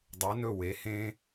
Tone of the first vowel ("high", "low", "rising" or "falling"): rising